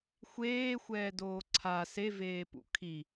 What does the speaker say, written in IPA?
xʷ eː xʷ ɛː d oː ǀʰ a s e v eː p ṵ kʰ i

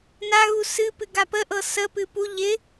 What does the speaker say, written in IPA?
n a ɣ u s ɨ p ɨ ɡ a p ə ʔ ɤ s ə p ɨ p u ʎ ɪ

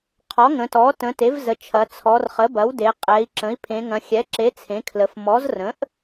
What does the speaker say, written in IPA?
qʰ ɔ˩˥ ŋ ə̃˩˧ t ɔ˩˥ t ə̃˩˧ t e˩˥ v z ə˩˧ t͡ʃʰ ɐ˩˧ t͡sʰ ɔ˩˧ r χ ə˩˥ b ɐ˩˥ w d e˩˧ qʼ ɛ˩˧ i̯ ǁ ə̃˩˥ i̯ pʰ ẽ˩˧ ŋ ɐ̃˩˧ xʲ ɛ˩˥ ǁ e˩˥ t͡sʰ ẽ˩˥ kʰ l ə˩˧ f m ɔ˩˥ z r ə̃˩˥ ʔ

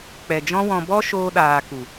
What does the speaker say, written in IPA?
k͡p ɛ˨ d͡ʒ ɔ̃˦ w ɔ̃˧ b ɔ˦ ʃ oː˧ ɗ aː˨ k u˨

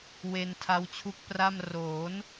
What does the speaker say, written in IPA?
w e˧ n tʰ a˦˥ w t͡ɕʰ u˦˥ k̚ p r a˥˩ m r oː˩˦ n

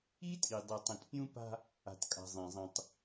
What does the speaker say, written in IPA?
i˦ tʼ i˨ dˤ i˨ tˤ ĩ˨ t pʲ ũ˦ p a̤˦ | a̤˨ t kʼ a̤˨ zˤ ĩ˨ zˤ ĩ˨ tˤ

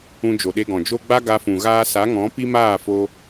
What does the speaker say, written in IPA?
ũ˧ d͡ʒ o˨ ɗ e˧ ɡ ɔ̃˨ d͡ʒ o˦ ɡ͡b a˦ ɡ a˧ f ũ˨ ɣ aː˧ s a˨˦ ŋ ɔ̃˨˦ p i˦ m aː˦˨ f o˧

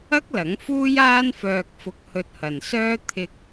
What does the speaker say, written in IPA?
ɐ˥ k̚ l ɐ˨˥ ŋ f uː˥ j aː˥ n f œː˧ k̚ f ʊ˧ k̚ h ɵ˧ t̚ h ɐ˨ n s œː˥ t̪ʰ ɪ˧ k̚

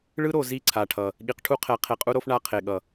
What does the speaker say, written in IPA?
ɭ ɯ˦ ɾ o˨ z i˦˨ ǀʰ a˨ ʈʰ ʌ˨ | ɠ i˨ q ʈʰ u˦ qʰ ɛ˨˦ qʰ e˨ qʼ u˦ ɾ o˦ f ɳ a˦ qʰ e˨ ɠ ʌ˨

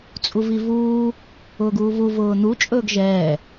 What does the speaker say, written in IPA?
t͡sʼ u v i v uː | ʊː ɡ uː v u v ʊː n̪ u t͡ʃʼ ɵː ɡ ʒ ɛː

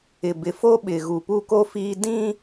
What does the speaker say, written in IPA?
ɪ˨ b ɪ˨ f o˦ ɓ ɪ˨ ɣ u˨ p u˦ k o˦ f iː˦ d ĩ˦

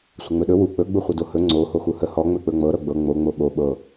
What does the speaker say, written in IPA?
sʷ ə ŋ͡m ɵ ɗ ɵ w u k͡p ɵ ɡ͡b u χʷ ə d o h ɵ ŋ͡ǀ o h o x u h ə h ɔ ŋ͡m ɵ k͡p ɵ ŋ͡m ɤ ɾ ɤ ɡ͡b ɤ ŋ͡m o ŋ͡m o ɓ o ɓ ɤ

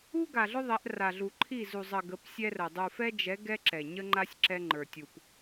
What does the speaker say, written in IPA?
u˦ ɡ a˨ ɮ ʊ˦ ðˤ ɛ˨˦ ʔ r a˨ ɮ u˨ ǃʰ i˦˨ z u˨ zˤ ə˨ ɡ ə˨˦ p sʲ ɛ˦ r ə˨ dˤ u˨ f ɛ˦ d͡ʒ ɛ˨˦ ɡ ɛ˦ ǁ ɛ˨ ɲ ə˦ ŋ͡ǃ a˦ sʲ ǁ ɛ˦ ŋ͡ǃ ə˞˨ tʲ u˨ p

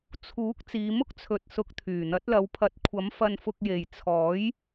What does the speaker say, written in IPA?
t͡sʰ uː˨˥ k̚ t͡s iː˨˧ m ʊ˥ k̚ t͡sʰ ɵ˨ t̚ s ʊ˨˥ k̚ t̪ʰ yː˨˩ n̪ ɐ˨˥ t̚ l ɐ˨˧ w pʰ ɐ˨˥ t̚ kʷʰ ɐ˨˥ m f ɐ˧ n f ʊ˧ k̚ j e˨ j t͡sʰ ɔː˨˥ j

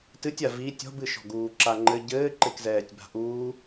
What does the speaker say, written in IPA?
t ɨ tʲ a v i tʲ ɔ̤ b ɨ ʃ ɔ̤ ɡ uː ǁ a ŋ͡ǃ ɘ ɟ ɘː ǃ e k z ɛː tʲ b a̤ ʔ uː

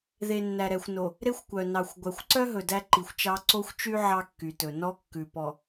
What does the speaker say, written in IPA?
ð e˨ nː æ˨ ɾ ɛ˨ xʷ n o˨ | ɾ e˦ xʷ kʷ œ˨ n ɑ˨ xʷ ɡʷ æ˨ xʷ ǀ œ˦ ɦ ɵ˨ d æ˦ ǃ i˨ xʷ t͡ʃ ɑ˦ ǀ o˦ xʷ t͡ʃ y˦ ʕ ɑ˦ kː y˨ t ɵ˨ n ɔ˦ kː ʉ˨ p ɔ˨

